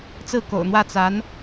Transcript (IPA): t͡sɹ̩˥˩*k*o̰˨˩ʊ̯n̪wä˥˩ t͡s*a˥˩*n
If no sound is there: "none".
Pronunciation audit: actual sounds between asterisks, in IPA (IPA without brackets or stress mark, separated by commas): k, a˧˥